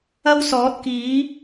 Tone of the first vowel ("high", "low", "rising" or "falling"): high